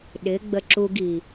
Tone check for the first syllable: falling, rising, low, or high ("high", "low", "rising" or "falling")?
rising